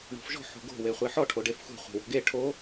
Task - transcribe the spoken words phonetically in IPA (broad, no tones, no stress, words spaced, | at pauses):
ɳo̤fʒɔ̤ħ o̤ɡo̤ weχʷeħɔ ʈʰoɖefxʷɛ̤ χʷe̤wo̤ɡe ʈʰo